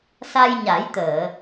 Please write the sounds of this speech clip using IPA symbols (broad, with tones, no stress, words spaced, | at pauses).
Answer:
sa˧jɲa˨˩˦jt̪əː˨˩˨